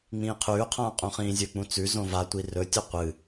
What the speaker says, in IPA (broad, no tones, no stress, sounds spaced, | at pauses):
ŋ͡m ĩː qʰ ʉː qʰ ãː qʼ ũ χ ĩː zʲ ɵ k͡p ũ t͡s ʉ z õ v a tʷ i r ɵ tʲ ɵ qʷ ɨ